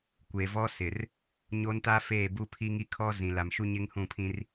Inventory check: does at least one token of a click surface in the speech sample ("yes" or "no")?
no